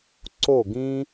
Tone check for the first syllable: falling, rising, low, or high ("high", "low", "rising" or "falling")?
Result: falling